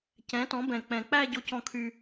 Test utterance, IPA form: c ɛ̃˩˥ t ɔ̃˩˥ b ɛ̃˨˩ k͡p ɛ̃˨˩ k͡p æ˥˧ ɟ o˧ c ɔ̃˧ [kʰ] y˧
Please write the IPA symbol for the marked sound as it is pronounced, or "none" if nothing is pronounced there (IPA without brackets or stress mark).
kʰ